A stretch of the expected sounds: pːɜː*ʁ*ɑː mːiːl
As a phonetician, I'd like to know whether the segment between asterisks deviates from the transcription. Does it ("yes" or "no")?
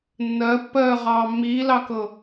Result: no